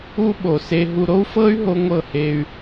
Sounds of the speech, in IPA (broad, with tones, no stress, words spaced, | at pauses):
u˧ɓo˨ se˧ɦu˧ ɾo˦u̯fɤ˦y̯ ɦo˦ŋʷɤ˦˨he˧y̯